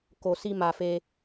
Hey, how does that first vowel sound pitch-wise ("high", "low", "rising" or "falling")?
low